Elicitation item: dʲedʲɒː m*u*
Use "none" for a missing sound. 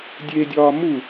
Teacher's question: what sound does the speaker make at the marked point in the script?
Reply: u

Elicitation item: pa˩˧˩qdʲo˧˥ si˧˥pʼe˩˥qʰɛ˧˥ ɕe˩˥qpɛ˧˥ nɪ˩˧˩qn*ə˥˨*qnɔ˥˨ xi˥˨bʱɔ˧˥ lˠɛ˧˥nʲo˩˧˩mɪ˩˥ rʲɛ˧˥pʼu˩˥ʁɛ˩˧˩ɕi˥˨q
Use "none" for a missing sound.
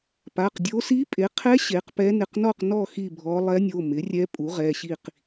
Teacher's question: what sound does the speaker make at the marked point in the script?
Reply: ɔ˥˨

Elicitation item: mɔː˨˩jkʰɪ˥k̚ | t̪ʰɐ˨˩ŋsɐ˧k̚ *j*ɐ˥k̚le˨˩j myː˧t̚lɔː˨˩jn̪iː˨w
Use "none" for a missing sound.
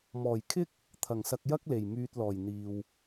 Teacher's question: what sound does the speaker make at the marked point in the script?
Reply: j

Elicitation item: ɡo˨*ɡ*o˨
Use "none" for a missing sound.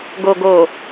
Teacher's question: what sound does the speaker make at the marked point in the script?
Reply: ɡ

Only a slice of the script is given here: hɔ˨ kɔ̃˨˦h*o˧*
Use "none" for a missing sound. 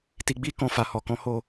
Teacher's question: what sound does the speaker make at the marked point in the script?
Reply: o˦˨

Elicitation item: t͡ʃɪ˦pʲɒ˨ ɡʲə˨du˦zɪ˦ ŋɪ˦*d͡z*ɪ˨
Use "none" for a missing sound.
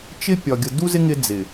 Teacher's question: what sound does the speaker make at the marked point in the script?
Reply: d͡z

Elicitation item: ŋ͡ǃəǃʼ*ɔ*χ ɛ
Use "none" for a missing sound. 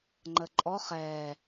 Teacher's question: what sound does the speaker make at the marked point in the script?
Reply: ɔ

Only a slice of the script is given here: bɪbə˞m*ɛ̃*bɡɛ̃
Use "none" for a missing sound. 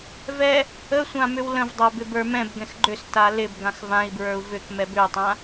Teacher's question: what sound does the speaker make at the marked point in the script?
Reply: ɛ̃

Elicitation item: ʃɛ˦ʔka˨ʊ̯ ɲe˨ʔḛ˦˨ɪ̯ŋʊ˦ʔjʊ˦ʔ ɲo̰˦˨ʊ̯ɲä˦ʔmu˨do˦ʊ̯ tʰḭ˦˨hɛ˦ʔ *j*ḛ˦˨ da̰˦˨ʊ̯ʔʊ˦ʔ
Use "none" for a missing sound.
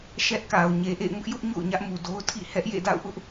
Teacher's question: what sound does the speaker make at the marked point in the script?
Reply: j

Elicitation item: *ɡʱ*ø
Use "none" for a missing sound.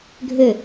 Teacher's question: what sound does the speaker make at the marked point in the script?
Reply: ɡʱ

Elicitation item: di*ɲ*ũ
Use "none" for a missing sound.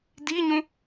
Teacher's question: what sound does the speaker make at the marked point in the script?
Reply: ɲ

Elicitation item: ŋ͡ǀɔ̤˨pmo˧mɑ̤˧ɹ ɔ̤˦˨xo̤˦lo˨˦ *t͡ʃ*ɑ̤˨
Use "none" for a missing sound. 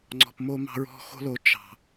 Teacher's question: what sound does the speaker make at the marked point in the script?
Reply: t͡ʃ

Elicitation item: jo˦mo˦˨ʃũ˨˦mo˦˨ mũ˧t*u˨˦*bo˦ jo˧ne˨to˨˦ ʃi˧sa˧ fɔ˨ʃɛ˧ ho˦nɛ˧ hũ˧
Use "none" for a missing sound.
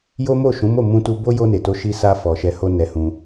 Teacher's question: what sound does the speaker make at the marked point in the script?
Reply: u˧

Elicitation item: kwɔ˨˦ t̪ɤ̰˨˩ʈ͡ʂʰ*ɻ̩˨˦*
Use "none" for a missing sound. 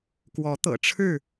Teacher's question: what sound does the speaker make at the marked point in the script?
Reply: ɻ̩˥˨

